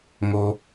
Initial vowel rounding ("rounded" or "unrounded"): rounded